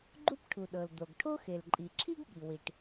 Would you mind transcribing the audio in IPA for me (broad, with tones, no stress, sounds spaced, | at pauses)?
ɡ͡ǃ u˥ p ʈʰ u˩ ɗ ɤ˩ l d̪ o˩ ɡ ʈʰ o˥ x e˩ l ǃʼ i˩ ǁʰ i˥ ɡ ɠ i˩ w i˩ ʈ